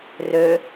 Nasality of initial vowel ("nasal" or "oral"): oral